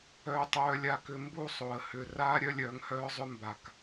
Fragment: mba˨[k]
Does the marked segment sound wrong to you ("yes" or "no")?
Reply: no